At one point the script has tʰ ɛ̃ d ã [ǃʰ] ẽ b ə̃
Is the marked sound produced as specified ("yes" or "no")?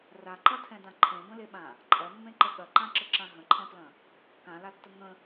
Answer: yes